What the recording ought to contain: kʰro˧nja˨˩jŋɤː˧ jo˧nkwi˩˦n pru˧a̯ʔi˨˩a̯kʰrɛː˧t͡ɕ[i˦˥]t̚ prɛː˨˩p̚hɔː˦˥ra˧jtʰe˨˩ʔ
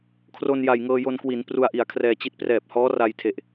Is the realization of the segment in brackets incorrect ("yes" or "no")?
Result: no